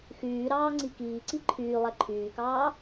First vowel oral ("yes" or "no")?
yes